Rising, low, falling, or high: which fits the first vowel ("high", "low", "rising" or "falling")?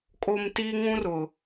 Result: high